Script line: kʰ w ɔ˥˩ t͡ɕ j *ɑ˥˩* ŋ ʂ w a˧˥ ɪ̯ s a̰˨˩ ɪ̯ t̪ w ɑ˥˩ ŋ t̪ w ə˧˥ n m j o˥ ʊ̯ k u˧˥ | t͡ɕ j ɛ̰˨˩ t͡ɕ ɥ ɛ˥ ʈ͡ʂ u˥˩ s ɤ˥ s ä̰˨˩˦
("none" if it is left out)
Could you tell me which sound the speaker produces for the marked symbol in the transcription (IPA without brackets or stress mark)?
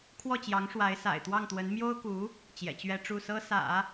ɑ˧˥